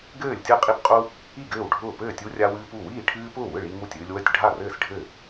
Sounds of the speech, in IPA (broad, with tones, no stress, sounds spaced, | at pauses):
ɡ ɘː˥˩ lʲ tʲ ɯ˥˩ qʼ i˦ p qʼ u˦ | i˥˩ ɡ ɘː˥˩ w ɖʱ ʊː˥˩ p ɘː˥˩ tʲ u˦ rʲ a˦ w ɨː˦ p u˥˩ w iː˥˩ ʈʰ ɨː˦ p ʊː˥˩ w ɯ˥˩ ɭ i˦ ŋ u˥˩ tʲ ɨː˦ lʲ w ə˥˩ tʲ ɖʱ a˥˩ r ɘː˥˩ s ɖʱ ɘː˥˩